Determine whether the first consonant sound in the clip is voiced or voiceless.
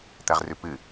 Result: voiceless